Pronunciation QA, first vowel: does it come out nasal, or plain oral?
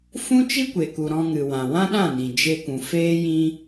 nasal